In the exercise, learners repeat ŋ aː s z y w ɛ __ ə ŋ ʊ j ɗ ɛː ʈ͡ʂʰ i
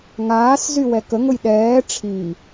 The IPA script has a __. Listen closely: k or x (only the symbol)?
k